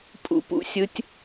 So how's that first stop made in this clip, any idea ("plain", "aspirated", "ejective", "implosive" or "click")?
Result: ejective